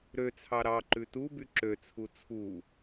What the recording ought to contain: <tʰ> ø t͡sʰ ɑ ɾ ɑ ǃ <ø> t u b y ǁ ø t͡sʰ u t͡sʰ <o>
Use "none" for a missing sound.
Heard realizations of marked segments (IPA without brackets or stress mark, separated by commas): ɾ, ʉ, u